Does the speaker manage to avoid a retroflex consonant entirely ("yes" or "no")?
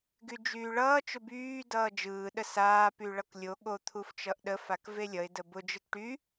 no